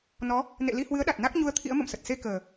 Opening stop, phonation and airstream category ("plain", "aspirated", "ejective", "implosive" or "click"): implosive